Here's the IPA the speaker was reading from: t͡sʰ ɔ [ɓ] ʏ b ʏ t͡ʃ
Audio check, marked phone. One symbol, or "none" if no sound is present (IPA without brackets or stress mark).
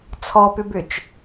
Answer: p